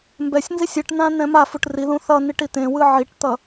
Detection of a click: absent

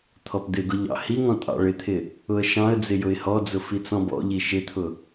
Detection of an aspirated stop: present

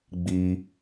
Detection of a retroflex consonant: absent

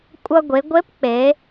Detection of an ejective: present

